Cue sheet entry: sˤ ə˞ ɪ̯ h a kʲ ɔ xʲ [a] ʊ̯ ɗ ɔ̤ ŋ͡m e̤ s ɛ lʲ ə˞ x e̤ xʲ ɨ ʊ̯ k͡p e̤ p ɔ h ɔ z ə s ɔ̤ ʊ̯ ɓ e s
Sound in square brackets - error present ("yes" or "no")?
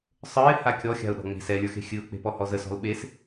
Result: yes